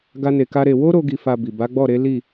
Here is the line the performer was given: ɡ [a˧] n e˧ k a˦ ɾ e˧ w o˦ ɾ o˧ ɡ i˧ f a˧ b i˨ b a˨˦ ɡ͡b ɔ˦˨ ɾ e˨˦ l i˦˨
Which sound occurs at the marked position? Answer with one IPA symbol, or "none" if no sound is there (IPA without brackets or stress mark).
a˦